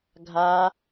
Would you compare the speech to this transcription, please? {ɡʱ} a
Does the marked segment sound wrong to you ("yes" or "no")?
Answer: no